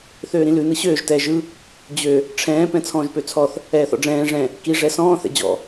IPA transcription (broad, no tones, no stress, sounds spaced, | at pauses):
θ øː ɾ ĩ l ʉ n ɯ ɕ øː ʒ t ɛː ʒ ɯ | d͡ʑ ø | ʈ͡ʂʰ ɛ̃ː p ɛ̃ t͡sʰ ɔ̃ː ʒ p ø t͡sʰ ɔ θ | ɛː θ ɔ̰ ɖ͡ʐ ɛ̃ː ʐ ɛ̃ | k i ʐ ɛ s ɔ̃ː θ ɛ̰ d͡ʑ ɔ̰